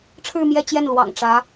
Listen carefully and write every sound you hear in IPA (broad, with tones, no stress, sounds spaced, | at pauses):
ʈ͡ʂʰ ɻ̩˥˧ m j ɛ˥˧ t͡ɕ j ɛ˥˩ n l w ɑ̰˨˩ ŋ ʈ͡ʂ ä˧˥